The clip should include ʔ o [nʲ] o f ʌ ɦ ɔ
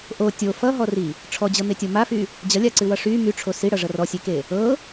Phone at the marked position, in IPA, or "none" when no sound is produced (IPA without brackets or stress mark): tʲ